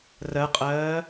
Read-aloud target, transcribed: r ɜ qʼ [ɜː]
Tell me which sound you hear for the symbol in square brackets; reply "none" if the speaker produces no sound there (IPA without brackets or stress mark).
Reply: ɜː